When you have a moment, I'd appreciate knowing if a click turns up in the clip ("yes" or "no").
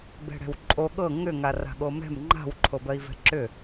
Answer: yes